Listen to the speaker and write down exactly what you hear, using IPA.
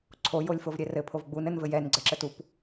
ǀʰ o j o lʲ f o v ɾʲ ɛ r ɘ pʰ o v ɡ͡b u n ɘ n v ɘ j ɛ n ɡ͡ǀ ɘ ǁ ɘ t u p

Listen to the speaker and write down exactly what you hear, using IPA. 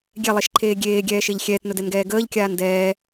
ɡʲ ɛ lˠ e ʃ ǃʰ eː ɡʲ eː ɡʲ ɛː ʃ e ʎ xʲ ɛː t n ɵ d ɛ n ɡ ɛː ɡ əː ʎ kʲ aː n d ɛː

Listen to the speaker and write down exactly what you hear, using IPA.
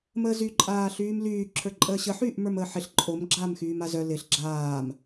m əː z y ǃʼ aː ɬ yː m l yː ǁʰ ə˞ ǃʼ əː ɕ ə ħ yː ʔ m ə˞ m əː ħ ɪ ɬ ǃʼ o m ɡ͡ǁ aː m x yː m a z œ l ɪ ɬ ɡ͡ǁ aː m

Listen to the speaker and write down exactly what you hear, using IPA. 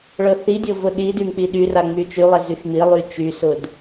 ɭ ɤ θ i dʲ ɤ v ʊ ɗ i d y m k͡p i ɗ y r a ŋ͡m y t͡ʃ y lˠ ɛ z y x m i lˠ y t͡ʃ y s ʊ d

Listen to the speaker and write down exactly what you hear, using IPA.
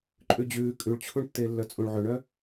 ǃʼ ʉ d͡ʑ ʉː kʼ ʉ ɭ t͡ɕʰ u ɳ tː e lː œ t͡sʼ ũ ɭ ʕ ɵ ɳ œ

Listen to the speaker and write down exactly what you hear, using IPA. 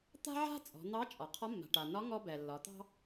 t̪ a̤˥ ʕ a̤˥ t͡sʼ ɔ̤˩˧ n̪ ɑ˧˥ t͡ʃʼ ɒ˩ qʰ ɒ˧˥ mː a̤˩ ʈ a˩ n ɒ˧˥ ŋ ɔ˧ b ɛ˩ lː ɒ˩˧ t̪ ɑ̤˥

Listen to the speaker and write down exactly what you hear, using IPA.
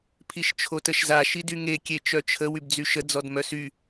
pʰ i ʃ t͡ʃʰ o t ə ʃ z a ʃ i d y ŋ e kʲ e t͡ʃ œ t͡ʃʰ ə w y b d͡z y ʃ ə d͡z ɔ d m œ s y

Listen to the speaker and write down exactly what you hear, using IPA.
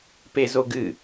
p e z o ɡ ɨ

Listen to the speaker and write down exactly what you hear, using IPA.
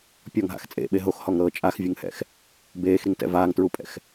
pʲ ɔ ŋ ɦ a̰ x t͡sʼ ḛ ɓ e ɦ o x h ɔ ŋ ɾ ɤː t͡ʃʼ a x vʲ ɯ ŋ h ɛ̰ x | b eː x ɾ i ŋ t ɛ̰ v aː ŋ t ɹ u pʼ ɛ̰ x

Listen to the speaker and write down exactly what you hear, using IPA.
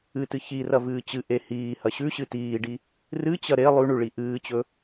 ɨ t ɨ ç i r ɐ v ɨː t͡ɕ ɨ ʔ e h iː h ɐ ɕ ʉ ɕ ɨ t iː ɖ i | r ɨ t͡ɕ ɐ ɾ e lˠ ʉ ɳ ʉ ɭ i ʔ ɨː t͡ɕ ɵ

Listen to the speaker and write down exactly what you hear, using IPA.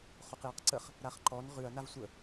χ o q j a q ǀ ə χ | ɾ a χ ǃ ɔ n ʁ ʉ ɐ̯ n a v sʷ ə

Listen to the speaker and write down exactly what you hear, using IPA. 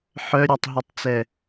ħ œ ɾʲ œ tˤ ɦ i tˤ t͡s ɛ

